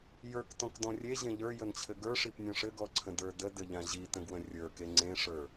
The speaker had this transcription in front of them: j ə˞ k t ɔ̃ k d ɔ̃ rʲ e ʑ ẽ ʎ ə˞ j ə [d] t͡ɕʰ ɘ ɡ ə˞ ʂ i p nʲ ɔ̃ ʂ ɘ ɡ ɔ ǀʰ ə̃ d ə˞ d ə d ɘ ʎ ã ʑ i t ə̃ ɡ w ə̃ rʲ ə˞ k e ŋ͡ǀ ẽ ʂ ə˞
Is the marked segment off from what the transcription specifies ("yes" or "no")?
yes